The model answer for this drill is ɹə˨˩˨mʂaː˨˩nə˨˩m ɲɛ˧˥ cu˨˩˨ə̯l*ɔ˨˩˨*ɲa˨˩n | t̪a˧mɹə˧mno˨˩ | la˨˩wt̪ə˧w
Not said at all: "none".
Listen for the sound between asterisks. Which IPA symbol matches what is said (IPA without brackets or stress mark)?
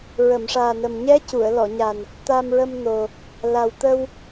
ɔ˨˩˨